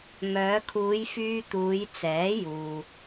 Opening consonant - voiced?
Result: yes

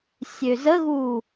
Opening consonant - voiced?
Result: no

